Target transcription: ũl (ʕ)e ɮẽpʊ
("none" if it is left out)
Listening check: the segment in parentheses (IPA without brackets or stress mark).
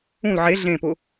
ʕ